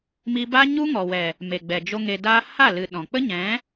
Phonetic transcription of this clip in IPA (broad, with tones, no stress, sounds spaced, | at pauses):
m i˦ b a˦ ɲ u˦ ŋ ɔ˨ w ɛ˨ | m e˨ ɡ͡b ɛ˨ d͡ʒ o˧ ŋ e˧ d aː˦ h a˦˨ l ɨ˨ ɗ ɔ̃˨ k͡p ə˦ ɲ ɛ̃˨˦